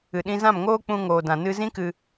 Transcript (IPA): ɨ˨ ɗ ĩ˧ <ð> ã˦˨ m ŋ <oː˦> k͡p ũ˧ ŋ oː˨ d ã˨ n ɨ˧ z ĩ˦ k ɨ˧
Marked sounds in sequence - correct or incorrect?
incorrect: z, correct

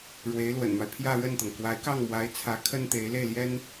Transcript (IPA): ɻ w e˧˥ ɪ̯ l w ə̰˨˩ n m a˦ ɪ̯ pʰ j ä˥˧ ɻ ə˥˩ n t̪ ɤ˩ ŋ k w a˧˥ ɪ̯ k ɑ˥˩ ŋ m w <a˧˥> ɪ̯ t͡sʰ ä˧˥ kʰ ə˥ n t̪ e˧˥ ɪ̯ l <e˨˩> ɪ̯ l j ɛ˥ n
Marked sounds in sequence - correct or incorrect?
correct, incorrect: e˥˩

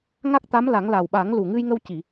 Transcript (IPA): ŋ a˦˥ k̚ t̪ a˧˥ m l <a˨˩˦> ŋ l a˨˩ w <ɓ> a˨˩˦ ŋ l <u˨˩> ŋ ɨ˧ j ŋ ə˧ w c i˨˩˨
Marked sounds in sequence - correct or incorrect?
correct, correct, correct

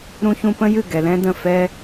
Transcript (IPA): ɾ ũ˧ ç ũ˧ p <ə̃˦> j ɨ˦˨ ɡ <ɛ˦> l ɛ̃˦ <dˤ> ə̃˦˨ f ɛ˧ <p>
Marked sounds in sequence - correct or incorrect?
correct, incorrect: ɛ˨, incorrect: d, incorrect: none

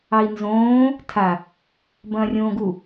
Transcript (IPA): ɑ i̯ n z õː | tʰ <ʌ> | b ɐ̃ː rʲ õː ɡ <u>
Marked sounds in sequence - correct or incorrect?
incorrect: a, correct

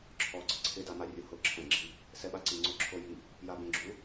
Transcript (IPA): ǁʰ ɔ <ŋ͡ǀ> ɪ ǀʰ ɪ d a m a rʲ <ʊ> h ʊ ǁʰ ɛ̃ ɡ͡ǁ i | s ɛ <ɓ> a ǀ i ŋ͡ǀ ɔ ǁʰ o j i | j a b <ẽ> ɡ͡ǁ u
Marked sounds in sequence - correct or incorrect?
incorrect: ɡ͡ǀ, correct, correct, correct

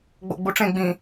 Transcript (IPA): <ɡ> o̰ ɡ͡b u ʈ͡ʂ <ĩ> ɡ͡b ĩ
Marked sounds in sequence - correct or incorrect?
incorrect: ɡ͡b, incorrect: ẽ

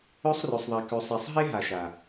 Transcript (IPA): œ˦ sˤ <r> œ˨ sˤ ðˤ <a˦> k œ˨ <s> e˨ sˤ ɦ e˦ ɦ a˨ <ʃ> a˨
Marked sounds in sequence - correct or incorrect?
correct, incorrect: a˨, incorrect: sˤ, correct

